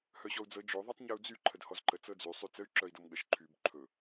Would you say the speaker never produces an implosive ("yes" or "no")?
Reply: no